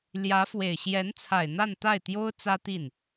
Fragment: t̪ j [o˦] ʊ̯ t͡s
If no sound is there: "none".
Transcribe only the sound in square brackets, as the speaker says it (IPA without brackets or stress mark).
o˥